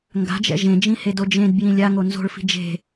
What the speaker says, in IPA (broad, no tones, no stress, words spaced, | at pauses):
ŋɡa̤d͡ʒɛ̰ ʒẽd͡ʒĩhedo d͡ʒẽdbjĩ lʲaŋo nzo̤ɭfi̤ d͡ʒe̤